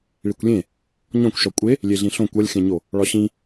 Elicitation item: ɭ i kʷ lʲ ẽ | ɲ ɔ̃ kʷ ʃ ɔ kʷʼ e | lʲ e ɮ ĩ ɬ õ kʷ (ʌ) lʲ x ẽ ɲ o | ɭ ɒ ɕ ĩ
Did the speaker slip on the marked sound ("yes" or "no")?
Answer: no